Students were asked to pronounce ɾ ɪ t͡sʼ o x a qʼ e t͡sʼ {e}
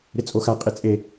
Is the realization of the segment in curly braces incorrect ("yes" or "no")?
no